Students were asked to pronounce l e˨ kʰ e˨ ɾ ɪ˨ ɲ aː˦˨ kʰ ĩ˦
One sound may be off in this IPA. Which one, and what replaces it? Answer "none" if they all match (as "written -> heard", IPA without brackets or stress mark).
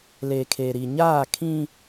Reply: ɪ˨ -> i˨